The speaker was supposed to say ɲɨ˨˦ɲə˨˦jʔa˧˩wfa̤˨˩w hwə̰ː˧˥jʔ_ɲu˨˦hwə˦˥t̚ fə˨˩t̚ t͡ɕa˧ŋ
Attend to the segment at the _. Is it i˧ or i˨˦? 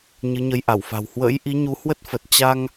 i˨˦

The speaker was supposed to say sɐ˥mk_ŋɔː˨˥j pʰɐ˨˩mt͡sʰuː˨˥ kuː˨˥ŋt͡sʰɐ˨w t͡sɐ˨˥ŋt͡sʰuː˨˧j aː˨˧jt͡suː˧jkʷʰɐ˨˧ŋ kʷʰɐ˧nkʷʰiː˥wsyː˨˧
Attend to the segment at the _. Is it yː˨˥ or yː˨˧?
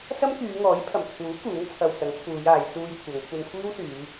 yː˨˧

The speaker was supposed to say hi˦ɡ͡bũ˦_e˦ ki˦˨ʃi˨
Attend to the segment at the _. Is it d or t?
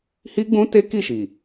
t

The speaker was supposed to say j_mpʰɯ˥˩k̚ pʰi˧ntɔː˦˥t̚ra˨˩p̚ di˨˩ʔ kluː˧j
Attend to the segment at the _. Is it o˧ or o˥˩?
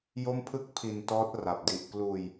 o˥˩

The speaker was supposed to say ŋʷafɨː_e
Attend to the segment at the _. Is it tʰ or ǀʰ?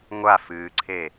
ǀʰ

